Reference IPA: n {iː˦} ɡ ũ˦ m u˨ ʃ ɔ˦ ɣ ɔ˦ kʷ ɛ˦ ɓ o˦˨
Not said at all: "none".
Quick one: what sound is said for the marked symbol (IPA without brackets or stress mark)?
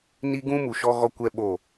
i˦